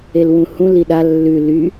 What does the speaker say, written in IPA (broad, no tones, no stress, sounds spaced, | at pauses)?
e l w ũ h ũ l i ɗ a lː ʉ l y